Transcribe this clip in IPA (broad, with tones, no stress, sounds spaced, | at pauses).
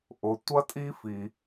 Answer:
ʔ ʊ˩ tʷ ɐ˥ tʼ i˥ f i˩